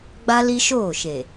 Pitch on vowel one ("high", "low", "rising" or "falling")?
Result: high